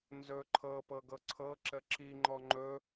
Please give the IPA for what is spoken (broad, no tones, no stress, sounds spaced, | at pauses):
n z ɵ ǃʰ ɤ p ɤ ɡ ɤ ǀʰ ɤ ǁ ə ǁ i ŋ͡ǃ ɔ ŋ͡ǃ ɵ